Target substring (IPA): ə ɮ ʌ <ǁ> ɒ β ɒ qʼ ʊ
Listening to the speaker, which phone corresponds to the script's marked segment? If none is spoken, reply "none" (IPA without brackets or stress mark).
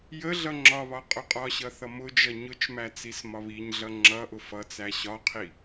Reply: ŋ͡ǁ